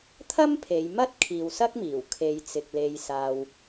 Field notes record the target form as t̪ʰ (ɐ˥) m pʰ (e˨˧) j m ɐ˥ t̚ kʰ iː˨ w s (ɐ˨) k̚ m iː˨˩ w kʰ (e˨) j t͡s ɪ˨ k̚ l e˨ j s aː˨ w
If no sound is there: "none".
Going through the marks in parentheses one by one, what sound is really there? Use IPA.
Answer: ɐ˥, e˨˧, ɐ˥, e˨

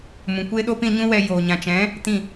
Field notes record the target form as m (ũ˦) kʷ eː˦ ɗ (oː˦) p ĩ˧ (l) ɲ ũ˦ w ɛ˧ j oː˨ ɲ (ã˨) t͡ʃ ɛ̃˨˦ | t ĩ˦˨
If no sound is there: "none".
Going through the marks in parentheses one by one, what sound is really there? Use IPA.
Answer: ũ˨, oː˦, l, ã˨

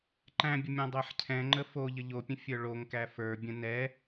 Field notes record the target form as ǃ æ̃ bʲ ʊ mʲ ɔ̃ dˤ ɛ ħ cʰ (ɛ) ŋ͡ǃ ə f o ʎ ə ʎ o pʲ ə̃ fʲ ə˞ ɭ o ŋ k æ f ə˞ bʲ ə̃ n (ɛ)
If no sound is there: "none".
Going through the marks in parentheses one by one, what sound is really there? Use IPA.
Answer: ɛ̃, ɛ

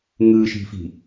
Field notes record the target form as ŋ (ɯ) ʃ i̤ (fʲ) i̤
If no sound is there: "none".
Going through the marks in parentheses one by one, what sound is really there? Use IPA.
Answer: ɯ, f

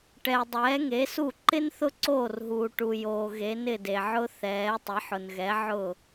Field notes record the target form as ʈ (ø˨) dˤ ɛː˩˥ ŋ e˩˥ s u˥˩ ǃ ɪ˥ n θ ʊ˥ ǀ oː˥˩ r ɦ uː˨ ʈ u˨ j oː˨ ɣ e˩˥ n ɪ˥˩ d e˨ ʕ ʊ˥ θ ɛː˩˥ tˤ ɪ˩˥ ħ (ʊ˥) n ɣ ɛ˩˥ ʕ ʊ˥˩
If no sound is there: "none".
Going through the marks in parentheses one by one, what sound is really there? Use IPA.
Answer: ɛ˨, ʊ˨

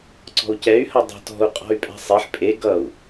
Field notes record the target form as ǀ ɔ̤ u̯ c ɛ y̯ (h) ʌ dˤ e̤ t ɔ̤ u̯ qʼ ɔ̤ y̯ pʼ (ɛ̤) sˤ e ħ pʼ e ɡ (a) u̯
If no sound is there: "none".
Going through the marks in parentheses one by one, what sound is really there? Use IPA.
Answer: h, ɛ̤, ʌ

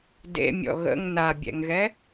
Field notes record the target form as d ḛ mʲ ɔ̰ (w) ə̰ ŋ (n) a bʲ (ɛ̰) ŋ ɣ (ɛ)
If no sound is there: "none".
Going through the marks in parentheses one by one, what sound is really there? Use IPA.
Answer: ɣ, n, ɛ̰, ɛ

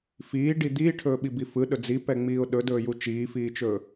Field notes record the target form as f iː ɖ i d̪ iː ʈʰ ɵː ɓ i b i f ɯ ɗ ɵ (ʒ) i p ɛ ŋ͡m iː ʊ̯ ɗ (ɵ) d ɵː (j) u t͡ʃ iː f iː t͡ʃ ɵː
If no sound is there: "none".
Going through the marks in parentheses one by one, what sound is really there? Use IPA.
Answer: d͡z, ɵ, j

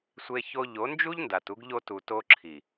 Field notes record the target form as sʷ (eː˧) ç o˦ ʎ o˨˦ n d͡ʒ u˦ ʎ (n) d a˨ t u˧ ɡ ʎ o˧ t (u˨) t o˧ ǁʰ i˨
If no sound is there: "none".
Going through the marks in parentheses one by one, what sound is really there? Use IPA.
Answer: e˧, n, u˨

